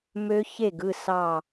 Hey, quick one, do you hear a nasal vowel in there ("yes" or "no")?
no